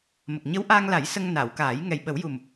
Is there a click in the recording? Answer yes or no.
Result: no